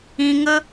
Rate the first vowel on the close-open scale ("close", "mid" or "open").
close